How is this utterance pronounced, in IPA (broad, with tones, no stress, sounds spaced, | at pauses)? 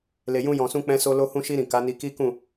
l e˨ j ũ˧ j ɔ̃˨ s ũ˧ k͡p ɛ̃˧ s o˧ l o˧ h ũ˧ ʃ i˧ ɾ ĩ˨ k a˨˦ n i˧ k i˦ k ũ˦˨